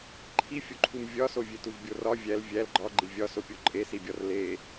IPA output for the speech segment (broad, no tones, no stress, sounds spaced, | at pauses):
ǃʰ i fʲ o ǃʰ u m vʲ ɒ s o vʲ e t u v bʲ o r ɒ vʲ æ l vʲ æ l ɡ͡ǃ ɒ ɡ͡ǃ i vʲ ɒ s o pʲ o ǃʼ e s i bʲ ɒ r l e